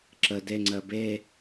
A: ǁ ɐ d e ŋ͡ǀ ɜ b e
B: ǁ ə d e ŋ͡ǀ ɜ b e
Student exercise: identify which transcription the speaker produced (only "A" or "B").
B